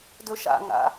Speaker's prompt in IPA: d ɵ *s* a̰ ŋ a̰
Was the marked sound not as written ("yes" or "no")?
yes